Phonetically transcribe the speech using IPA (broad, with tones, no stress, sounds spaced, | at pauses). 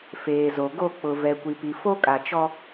f eː˨ z o˨ ɡ o˦˨ k͡p ʊ˨ v ɛ˨ kʷ i˨ p i˨ f o˦ kʼ a˨ t͡ʃ ɔ˦